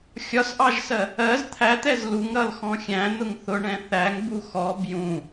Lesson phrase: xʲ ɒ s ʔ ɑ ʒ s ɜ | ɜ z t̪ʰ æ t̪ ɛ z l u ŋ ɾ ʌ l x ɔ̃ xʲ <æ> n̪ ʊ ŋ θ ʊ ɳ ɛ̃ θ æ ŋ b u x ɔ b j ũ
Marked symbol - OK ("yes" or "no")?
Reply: no